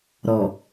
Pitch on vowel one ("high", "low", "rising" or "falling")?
low